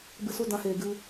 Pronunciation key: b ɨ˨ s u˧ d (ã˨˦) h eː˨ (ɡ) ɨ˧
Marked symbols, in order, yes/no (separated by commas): yes, yes